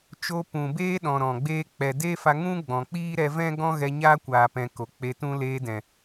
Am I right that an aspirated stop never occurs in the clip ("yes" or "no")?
yes